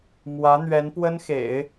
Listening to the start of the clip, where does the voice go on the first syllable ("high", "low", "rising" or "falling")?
rising